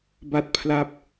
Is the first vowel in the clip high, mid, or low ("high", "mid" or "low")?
low